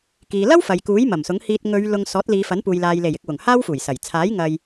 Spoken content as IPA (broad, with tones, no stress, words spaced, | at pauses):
kiː˨lɐ˥w fɐ˨jkuː˨˥j mɐ˨˩msʊ˨˥ŋ hiː˧t̚ ŋɵ˨˧ɥ lʊ˧ŋ sɔː˨˥t̚liː˨˧fɐ˨˥npuː˨j laː˨j le˨˩jɪ˨k̚ wʊ˨˩ŋhaː˥wfuː˨˩jsɐ˨˩j t͡sʰaː˨˥j ŋɐ˧j